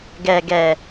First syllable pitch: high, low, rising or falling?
low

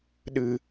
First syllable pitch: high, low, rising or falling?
low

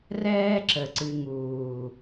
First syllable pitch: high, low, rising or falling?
high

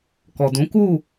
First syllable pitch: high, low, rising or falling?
low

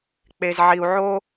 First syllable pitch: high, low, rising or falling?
low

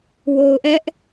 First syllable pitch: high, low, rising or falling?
low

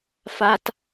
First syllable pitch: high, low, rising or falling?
high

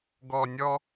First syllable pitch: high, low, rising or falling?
low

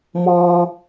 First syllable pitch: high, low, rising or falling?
low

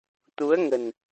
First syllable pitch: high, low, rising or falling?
rising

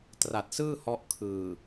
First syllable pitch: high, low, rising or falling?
low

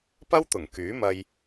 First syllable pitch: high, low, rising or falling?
high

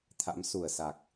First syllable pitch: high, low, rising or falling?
rising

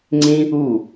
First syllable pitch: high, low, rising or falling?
high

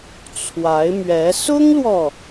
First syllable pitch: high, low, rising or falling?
rising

